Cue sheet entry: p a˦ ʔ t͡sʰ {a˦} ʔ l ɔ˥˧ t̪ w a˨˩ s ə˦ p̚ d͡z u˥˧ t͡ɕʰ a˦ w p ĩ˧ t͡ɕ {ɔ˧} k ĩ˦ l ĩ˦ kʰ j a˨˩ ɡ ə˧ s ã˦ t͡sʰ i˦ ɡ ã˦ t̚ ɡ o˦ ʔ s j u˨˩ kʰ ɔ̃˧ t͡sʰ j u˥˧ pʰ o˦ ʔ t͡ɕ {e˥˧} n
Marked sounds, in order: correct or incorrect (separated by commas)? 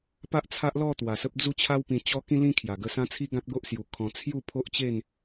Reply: correct, incorrect, correct